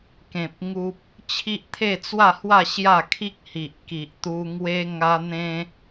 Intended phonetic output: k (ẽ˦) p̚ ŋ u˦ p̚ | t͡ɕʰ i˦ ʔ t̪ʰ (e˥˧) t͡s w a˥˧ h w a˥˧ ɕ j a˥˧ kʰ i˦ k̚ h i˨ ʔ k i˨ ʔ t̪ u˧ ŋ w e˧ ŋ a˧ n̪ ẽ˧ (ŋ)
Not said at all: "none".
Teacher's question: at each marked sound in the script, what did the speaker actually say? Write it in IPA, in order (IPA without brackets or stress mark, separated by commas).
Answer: ẽ˨, e˥˧, none